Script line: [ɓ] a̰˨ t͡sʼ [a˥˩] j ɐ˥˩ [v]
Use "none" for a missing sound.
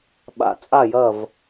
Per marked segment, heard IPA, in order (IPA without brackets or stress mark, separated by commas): ɓ, a˥˩, v